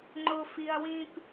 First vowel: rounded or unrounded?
rounded